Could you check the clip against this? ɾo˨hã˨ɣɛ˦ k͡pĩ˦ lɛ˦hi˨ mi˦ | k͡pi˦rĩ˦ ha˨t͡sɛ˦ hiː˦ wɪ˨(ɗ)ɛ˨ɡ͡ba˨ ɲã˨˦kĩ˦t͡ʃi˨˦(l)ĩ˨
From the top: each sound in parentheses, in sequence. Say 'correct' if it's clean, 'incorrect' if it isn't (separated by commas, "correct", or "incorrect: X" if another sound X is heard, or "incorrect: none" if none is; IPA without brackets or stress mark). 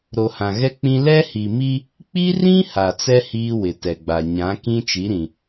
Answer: incorrect: t, incorrect: ɾ